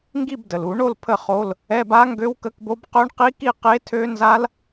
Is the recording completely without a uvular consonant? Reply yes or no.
no